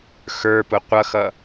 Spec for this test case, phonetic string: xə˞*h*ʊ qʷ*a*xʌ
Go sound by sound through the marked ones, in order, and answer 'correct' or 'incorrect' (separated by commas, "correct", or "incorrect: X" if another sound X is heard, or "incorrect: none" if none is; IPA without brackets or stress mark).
incorrect: p, incorrect: ʌ